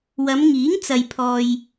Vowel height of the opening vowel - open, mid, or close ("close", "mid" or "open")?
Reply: open